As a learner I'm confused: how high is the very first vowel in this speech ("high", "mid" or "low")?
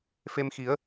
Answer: mid